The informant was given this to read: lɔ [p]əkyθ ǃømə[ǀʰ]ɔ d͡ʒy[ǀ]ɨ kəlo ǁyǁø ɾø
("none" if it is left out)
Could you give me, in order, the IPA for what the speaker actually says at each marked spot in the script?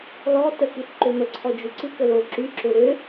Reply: t, ǀʰ, ǀ

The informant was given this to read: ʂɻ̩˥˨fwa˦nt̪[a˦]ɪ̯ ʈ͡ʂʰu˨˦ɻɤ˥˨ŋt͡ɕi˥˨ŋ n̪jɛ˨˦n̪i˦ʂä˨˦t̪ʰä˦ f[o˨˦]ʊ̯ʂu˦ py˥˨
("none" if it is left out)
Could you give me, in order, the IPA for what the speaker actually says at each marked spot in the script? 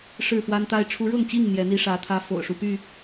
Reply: a˦, o̰˨˩

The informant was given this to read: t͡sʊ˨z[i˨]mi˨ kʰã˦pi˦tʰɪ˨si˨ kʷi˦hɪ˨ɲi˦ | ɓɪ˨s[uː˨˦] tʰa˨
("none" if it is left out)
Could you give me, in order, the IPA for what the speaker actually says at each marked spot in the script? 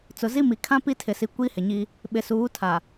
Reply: i˦, uː˨˦

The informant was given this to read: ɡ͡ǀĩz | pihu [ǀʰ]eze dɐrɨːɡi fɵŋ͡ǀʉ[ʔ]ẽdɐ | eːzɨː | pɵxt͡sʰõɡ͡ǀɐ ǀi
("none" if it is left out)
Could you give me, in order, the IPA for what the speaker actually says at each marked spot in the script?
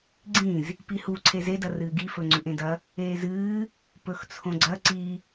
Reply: ǀʰ, ʔ

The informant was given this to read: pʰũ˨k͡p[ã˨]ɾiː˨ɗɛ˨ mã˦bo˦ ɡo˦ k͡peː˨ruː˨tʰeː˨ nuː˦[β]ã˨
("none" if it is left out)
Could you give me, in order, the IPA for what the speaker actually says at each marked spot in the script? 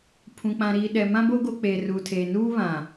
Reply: ã˨, β

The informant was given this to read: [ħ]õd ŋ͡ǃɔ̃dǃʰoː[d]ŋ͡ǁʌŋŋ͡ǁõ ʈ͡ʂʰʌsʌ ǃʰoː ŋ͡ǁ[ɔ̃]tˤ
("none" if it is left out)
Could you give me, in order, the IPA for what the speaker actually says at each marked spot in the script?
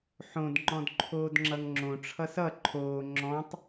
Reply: ħ, d, ɔ̃

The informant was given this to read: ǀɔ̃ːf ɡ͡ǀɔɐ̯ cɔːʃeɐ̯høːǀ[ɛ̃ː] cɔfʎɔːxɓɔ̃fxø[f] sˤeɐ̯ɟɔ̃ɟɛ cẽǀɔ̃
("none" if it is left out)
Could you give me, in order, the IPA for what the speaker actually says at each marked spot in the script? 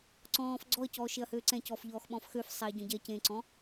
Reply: ɛ̃, f

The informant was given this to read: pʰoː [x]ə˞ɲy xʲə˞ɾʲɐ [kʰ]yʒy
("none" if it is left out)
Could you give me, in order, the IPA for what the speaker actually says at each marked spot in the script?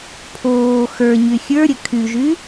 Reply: x, kʰ

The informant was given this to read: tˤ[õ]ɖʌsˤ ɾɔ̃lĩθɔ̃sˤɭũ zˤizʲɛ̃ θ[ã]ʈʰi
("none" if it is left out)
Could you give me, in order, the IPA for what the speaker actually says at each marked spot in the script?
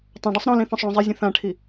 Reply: õ, ã

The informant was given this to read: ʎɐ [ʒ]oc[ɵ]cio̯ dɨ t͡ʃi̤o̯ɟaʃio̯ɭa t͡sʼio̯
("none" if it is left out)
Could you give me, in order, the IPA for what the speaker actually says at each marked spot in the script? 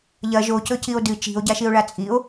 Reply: ʒ, ɵ

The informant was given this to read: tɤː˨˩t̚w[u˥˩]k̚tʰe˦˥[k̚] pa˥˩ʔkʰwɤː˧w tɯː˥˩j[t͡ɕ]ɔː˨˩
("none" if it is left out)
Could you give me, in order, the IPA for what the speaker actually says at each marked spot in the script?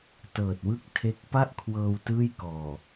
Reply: ɯ˥˩, k̚, k

